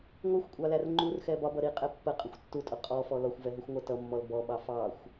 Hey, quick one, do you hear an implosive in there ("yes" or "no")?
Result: yes